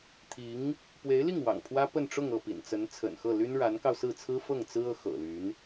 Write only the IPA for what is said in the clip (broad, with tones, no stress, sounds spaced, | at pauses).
t̪ʰ i˧˥ ŋ | p w e˧˥ ɪ̯ l i˥˩ ŋ w ɑ̰˨˩ ŋ pʰ w ä˥ p ə˥˧ n ʈ͡ʂ ʊ˥˧ ŋ ɤ˥˩ p ḭ˨˩ n t͡s ə˧˥ n t͡sʰ ə̰˨˩ n x ɤ˥˩ l y˥ n ɻ a˧˥ n k ɑ˧ ʊ̯ s ɹ̩˥˩ t͡sʰ ɹ̩˥ f ɤ˥˩ ŋ t͡s ɹ̩˥ ɤ˧˥ x ɤ̰˨˩ l y˧˥ n